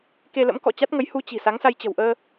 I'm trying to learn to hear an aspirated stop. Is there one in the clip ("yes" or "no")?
no